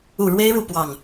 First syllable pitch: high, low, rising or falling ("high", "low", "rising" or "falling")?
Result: low